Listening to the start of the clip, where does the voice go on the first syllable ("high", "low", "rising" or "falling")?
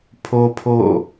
high